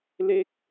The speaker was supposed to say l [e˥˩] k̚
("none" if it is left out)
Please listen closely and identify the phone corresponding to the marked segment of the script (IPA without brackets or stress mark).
e˥˩